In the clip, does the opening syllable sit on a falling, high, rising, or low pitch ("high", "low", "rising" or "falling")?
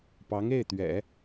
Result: rising